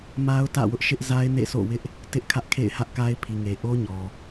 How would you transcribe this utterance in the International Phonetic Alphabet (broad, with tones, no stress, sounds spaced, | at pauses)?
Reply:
m a˦ ʊ̯ t ä̰˦˨ w ʊ˦ ʔ ʃ ɪ˦ ʔ z a˦ ɪ̯ n ḛ˦˨ s o̰˦˨ w ɪ˦ ʔ | t ɪ˦ ʔ kʰ ä˦ ʔ kʰ ḛ˦˨ ɪ̯ h ä˦ ʔ k a˦ ɪ̯ pʰ i˨ ŋ e˨ ʔ o˦ ɲ ɔ˨